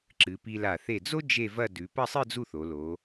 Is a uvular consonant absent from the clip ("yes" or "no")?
yes